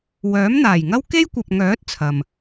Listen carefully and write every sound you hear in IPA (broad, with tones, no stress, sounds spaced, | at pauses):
w œː˨˥ m n̪ aː˨˩ j ŋ ɐ˥ w k e˥ j kʷ ɐ˨ p̚ ŋ œː˨˥ t̚ t͡sʰ ɐ˨ m